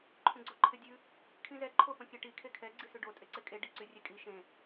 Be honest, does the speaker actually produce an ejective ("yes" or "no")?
yes